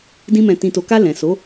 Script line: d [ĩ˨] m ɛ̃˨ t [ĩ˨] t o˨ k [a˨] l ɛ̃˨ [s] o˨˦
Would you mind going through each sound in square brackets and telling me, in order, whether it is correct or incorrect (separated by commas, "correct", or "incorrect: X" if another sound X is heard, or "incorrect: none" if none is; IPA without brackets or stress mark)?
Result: incorrect: ĩ˧, correct, incorrect: a˧, correct